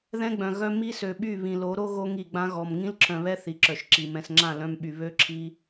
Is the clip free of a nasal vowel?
no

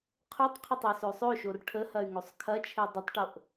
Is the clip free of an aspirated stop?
no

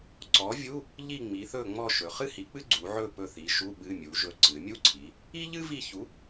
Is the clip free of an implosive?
no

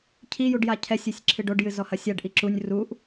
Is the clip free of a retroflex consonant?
no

